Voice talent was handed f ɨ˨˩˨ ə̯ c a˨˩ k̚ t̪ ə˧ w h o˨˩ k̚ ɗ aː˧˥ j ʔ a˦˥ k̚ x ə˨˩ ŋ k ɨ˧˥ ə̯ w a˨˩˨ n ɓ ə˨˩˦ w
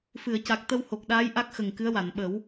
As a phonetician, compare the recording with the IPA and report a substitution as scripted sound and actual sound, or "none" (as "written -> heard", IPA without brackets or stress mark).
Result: none